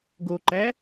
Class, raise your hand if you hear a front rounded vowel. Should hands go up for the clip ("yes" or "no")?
no